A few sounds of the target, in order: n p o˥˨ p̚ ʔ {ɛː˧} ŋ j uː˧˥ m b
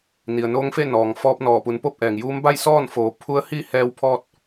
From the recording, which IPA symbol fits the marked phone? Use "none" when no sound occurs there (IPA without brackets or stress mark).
ɛː˩